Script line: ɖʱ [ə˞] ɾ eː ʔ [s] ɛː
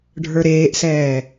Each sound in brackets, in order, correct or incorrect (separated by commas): correct, correct